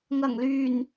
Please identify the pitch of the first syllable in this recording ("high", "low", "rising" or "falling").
low